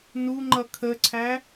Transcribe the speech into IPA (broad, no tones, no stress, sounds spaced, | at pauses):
n u ŋ͡ǃ ʌ kʰ ə ǀʰ æ